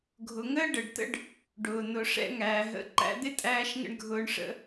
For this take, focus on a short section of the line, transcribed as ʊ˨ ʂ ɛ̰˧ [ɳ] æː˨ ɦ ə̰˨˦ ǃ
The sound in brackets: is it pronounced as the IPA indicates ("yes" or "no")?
no